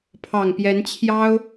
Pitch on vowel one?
low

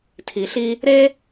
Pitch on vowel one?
low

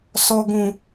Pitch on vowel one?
low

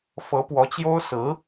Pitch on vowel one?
rising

